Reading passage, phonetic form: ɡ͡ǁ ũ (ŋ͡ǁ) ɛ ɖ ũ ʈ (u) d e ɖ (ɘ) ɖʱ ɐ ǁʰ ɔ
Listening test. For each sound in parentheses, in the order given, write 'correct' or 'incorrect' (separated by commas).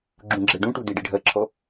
incorrect, correct, correct